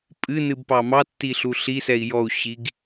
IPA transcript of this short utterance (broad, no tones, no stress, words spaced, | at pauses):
pʼɨnɨbpɑ mɑtːiɬu ɬisɛi̯ jɔu̯ɕiɡ